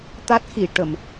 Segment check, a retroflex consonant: present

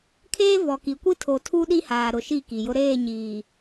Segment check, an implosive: present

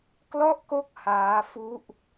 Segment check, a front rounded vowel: absent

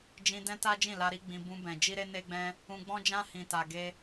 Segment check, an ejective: absent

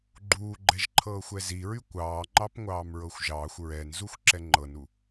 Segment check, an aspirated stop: present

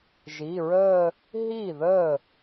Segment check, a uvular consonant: absent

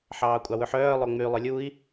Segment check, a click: absent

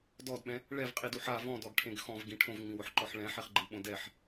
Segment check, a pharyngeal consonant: present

